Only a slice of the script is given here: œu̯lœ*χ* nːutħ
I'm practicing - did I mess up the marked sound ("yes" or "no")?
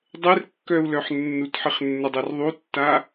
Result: yes